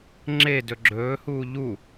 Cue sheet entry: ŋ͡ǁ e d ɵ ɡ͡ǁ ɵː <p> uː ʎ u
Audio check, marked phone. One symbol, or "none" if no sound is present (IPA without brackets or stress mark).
h